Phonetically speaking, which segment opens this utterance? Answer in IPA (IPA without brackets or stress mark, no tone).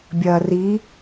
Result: bʲ